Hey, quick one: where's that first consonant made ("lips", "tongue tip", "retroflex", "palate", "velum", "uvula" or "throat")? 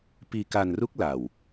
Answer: lips